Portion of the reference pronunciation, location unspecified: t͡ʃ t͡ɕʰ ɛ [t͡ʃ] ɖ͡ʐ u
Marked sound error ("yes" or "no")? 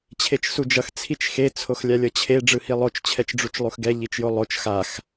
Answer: no